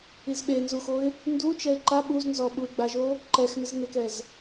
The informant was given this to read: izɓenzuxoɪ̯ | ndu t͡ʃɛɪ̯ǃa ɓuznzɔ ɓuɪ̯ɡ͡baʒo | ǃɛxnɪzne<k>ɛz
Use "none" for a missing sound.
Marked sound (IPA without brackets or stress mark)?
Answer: k